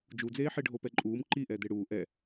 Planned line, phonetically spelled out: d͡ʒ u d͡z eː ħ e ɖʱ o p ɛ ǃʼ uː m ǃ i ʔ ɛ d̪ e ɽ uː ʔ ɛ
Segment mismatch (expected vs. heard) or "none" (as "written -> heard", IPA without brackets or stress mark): none